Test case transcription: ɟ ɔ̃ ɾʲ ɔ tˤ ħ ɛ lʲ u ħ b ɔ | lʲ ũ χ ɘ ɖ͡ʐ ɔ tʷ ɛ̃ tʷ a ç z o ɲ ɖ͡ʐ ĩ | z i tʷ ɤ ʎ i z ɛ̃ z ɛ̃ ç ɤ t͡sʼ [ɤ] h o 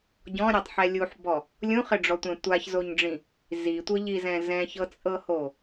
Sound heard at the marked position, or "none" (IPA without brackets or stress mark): ɤ